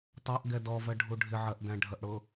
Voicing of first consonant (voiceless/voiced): voiceless